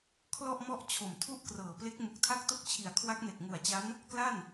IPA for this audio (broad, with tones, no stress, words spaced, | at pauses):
kʰlɔ˥˩ʔmɔ˥˩ʔ t͡ɕʰo˨˩mtʰu˥˩ʔkrɤː˨˩ple˦˥k̚ mu˨˩k̚tʰa˥˩k̚to˥˩k̚t͡ɕʰi˨˩a̯ kʰwa˦˥k̚ne˨˩k̚ŋu˨˩a̯t͡ɕa˦˥n | kla˥˩n